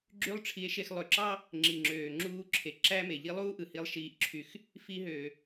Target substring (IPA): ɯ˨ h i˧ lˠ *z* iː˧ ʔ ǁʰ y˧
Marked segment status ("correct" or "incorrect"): incorrect